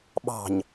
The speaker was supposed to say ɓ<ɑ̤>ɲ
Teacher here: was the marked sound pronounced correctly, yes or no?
yes